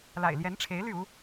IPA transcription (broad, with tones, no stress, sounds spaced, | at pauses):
l a̰˨˩ ɪ̯ l j ɛ˧˥ n ʈ͡ʂʰ e˧˥ ɪ̯ l y˥˩ u˥